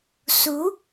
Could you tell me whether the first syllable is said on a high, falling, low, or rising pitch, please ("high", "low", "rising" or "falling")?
rising